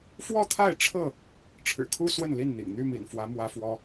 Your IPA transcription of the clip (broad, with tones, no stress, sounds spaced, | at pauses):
f w ɔ˥˨ t̪ʰ a˥˨ ɪ̯ ʈ͡ʂʰ ɤ˥˨ | ʈ͡ʂʰ ɻ̩˨˩ kʰ u˦ s w ə˥˨ n l i˥˨ n n̪ ḭ˨˩ ŋ n̪ y˥˨ m ḭ˨˩ n f w ä˨˦ m w ä˦ f w ɔ˦